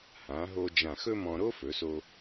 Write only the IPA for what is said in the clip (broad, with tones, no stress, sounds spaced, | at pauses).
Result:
h ã˩˧ ɦ o˧ d͡ʒ ã˧˩ x ɵ˥ m ɔ̃˧ ɾ o˥ f ɵ˩˧ s o˧